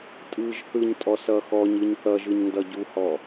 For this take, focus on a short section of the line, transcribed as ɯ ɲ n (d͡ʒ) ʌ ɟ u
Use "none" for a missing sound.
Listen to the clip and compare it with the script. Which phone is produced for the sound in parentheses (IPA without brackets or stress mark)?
d